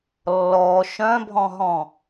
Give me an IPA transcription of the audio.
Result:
lːɔ ʃœ̃bʱɔ̃ɦɔ̃

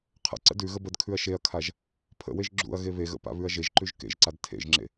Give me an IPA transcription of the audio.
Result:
qʰə̰ ǀə̰dʉɣə bədkʰʉɐ̯ ʃeɐ̯kʰaʒ | pʰə̰weʒ ɡ͡ǁṵɐ̯ ɣeβeɣə̰ pa̰βʉɐ̯ʒeʒǃʉʒ kḛʒǀad tʰḛʒŋ͡ǁḛ

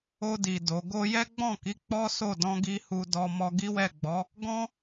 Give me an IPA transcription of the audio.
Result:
o˧di˨ do˨˦ ɡo˧jɛ˦ɡ͡bɔ̃˦˨ki˨˦ k͡pɔ˦so˦˨dɔ̃˧ ɡi˦hu˧dɔ˧ mɔ˧ɡi˦wɛ˦˨ɡ͡bɔ˨˦ | ɡɔ̃˦

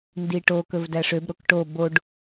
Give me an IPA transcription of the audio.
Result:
ndiʈo kɵvdæʂøb ɾokʈo boɖ

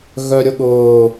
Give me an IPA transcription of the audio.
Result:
ɣœɾʲʊɠʊː

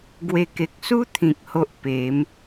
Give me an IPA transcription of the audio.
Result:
ɡwe˨˩ke˨k̚su˦ t̪ʰĩ˨k̚ho˦ʔpe˨˦m

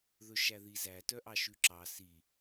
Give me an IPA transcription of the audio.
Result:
ðɵʃæðizæ tœʔɑʃʉǁɑ si

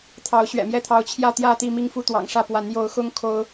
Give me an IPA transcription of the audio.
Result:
t̪ʰɑ˨˦ʊ̯ɕɥɛ̰˨˩mjɛ˥˨t̪ʰɑ˨˦ʊ̯ t͡ɕʰjä˥˨t̪jä˥˨t̪i˥˨ mi˥˨ŋfu˥˨t̪wɑ̰˨˩ŋʂä˥˨ pwa˨˦njo˨˦ʊ̯xʊ˦ŋ kʰo˦ʊ̯

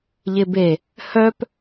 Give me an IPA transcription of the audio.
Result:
ʎɪbe | hœp

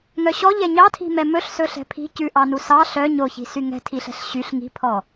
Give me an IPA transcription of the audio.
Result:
ŋœɕɔʎɛ ɲɑtʰi̤mɛ mɵɬsɵɬɛ̤ pʰi̤ cʉʔɑ nusɑ ɬœ ɲoçi̤ syŋɛ̤tʰiɬɛ̤ɬ ɕyɬ ŋi̤pʰɔ

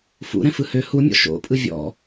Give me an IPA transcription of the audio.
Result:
fṵɾɛ̃fɯ hø humʲɔ̰ ʃo̰pʼɯ vʲɔ̰

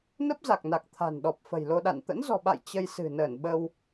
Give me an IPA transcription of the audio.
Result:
nə˦˥p̚za˨˩k̚na˨˩k̚ t̪ʰa̤˨˩nɗɔ˨˩p̚ fə̤˨˩jlo˧ɗa̰˧˨n t̪ə̰˧˥nzɔ̤˨˩ɓa̰˧˨j t͡ɕə˧jsɨ̤˨˩ nəː˧˩nɓə˧w

